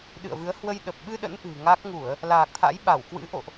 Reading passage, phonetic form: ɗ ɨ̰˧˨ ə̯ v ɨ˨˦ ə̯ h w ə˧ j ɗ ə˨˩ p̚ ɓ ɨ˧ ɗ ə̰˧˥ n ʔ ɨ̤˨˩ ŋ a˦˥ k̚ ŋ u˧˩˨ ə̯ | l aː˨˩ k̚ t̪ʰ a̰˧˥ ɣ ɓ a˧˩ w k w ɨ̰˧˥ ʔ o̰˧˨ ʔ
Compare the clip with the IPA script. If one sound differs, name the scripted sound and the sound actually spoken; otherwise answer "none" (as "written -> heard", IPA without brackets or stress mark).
ɣ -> j